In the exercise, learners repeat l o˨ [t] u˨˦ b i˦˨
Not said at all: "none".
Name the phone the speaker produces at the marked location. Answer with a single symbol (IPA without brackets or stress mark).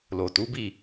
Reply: t